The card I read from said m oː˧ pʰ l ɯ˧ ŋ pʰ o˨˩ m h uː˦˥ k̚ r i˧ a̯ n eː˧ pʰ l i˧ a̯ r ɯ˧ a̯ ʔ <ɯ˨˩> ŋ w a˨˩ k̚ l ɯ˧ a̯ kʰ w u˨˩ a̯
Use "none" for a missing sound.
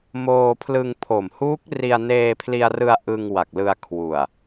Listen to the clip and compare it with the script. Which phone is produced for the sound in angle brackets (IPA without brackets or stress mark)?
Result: ɯ˧